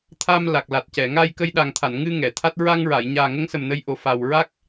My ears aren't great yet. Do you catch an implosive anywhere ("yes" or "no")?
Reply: yes